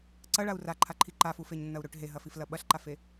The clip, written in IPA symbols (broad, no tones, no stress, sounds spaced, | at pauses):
ǀ ɐ ɭ a u̯ r a ǃʰ a ǃʰ i ǃ a f u f e ɲ nː ɐ u̯ ɾ ɵ ʈ ɦ e ɦ ɐ f i f l ɐ ɓ ɐ ɬ ǃ a f e